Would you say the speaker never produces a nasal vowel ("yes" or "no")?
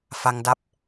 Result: yes